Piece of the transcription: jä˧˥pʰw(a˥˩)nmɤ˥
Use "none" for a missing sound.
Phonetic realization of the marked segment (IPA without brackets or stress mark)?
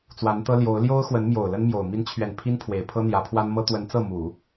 a˥